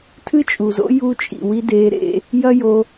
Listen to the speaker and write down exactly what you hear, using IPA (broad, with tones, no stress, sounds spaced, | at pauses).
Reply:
tʰ ɨ˥ t͡ʃʼ u˩ z o̰˥ j u˥ t͡ʃʼ ḭ˩ w i˧˥ d e˧˥ ɾ ḛ˧˥ | j ɐ˥ j o˧